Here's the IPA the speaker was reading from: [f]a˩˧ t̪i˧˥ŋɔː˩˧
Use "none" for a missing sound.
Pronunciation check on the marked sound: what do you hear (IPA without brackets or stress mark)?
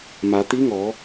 m